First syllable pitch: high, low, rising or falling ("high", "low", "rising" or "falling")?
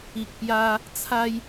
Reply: low